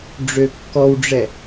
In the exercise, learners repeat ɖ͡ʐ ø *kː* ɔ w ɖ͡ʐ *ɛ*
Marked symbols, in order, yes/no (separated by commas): yes, yes